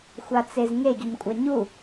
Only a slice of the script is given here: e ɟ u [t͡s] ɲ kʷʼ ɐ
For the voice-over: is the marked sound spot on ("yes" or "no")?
no